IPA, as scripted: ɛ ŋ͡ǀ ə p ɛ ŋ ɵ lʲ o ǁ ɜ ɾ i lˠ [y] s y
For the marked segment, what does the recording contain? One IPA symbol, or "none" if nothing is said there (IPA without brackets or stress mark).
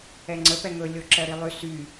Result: y